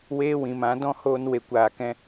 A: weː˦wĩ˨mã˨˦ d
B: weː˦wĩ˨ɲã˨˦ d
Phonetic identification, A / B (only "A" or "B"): A